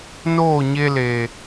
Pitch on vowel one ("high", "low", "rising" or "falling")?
falling